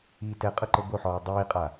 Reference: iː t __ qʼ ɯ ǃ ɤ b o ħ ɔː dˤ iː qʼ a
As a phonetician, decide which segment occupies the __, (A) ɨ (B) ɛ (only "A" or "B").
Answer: B